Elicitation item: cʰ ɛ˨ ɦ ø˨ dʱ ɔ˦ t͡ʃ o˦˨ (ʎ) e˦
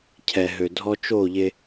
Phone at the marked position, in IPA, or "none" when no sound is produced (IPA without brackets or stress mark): ʎ